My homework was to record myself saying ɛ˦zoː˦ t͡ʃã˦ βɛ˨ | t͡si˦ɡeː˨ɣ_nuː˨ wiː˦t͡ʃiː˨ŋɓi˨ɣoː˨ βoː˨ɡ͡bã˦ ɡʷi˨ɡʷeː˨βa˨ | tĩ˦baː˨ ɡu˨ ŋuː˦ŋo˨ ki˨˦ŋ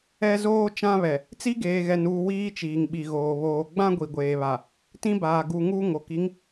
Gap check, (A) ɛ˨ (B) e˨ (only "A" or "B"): A